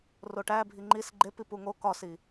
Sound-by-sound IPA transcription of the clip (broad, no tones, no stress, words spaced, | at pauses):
roʈæ bʱiŋ͡ǃis ɡ͡ǃepip uŋo kɒsi